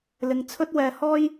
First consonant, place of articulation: alveolar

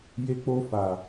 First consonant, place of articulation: palatal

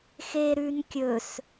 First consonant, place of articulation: velar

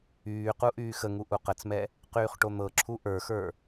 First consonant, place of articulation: uvular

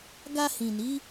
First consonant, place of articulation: velar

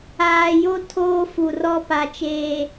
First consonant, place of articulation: palatal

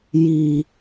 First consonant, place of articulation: palatal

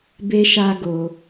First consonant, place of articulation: labial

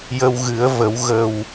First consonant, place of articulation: palatal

